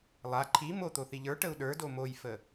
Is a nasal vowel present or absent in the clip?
absent